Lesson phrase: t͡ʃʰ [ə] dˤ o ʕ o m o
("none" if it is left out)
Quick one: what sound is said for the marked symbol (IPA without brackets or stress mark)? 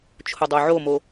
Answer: ʊ